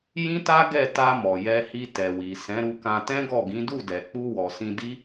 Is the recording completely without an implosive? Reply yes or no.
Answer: yes